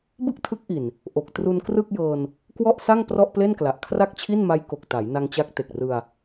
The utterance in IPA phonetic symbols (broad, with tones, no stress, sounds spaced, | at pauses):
b ɯ˥˩ k̚ tʰ ɯ˦˥ k̚ ʔ i˨˩ n | ʔ o˨˩ k̚ t r u˧ n k r ɯ˥˩ k̚ j ɤː˧ n | k w ɔ˥˩ ʔ s a˥˩ ŋ p r ɔ˥˩ ʔ p l e˥˩ n k l a˨˩ ʔ kʰ r a˥˩ k̚ t͡ɕʰ i˥˩ n m a˦˥ j k o˨˩ k̚ t a˩˦ j n a˧ ŋ t͡ɕ a˦˥ k̚ t e˨˩ k̚ r ɯ˧ a̯